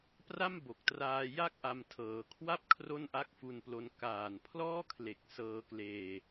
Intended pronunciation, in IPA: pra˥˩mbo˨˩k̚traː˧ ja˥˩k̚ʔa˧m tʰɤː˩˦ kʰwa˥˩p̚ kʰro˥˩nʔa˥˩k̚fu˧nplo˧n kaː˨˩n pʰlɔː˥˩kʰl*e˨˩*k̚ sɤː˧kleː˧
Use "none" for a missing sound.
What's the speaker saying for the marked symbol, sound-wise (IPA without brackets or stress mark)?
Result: e˨˩